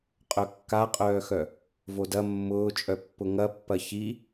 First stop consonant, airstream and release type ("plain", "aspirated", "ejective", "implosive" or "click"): ejective